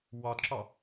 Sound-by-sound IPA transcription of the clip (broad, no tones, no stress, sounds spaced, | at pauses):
w ɒ d ǁ ɒ